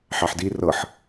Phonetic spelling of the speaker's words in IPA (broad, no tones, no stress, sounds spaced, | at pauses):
ħ ɑ ħ d i r ɤ ħ